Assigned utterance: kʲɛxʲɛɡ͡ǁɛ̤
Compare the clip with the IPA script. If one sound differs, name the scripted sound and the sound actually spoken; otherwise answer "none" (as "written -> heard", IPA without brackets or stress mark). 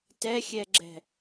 kʲ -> t